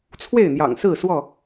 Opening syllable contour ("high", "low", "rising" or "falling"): falling